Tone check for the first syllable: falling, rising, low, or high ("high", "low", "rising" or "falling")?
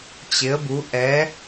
rising